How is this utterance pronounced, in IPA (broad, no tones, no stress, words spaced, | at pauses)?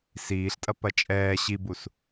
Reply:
siːɬtʼɐpɐ t͡ʃʼɛː ɕibus